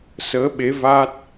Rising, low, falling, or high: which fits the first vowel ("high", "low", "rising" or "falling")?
rising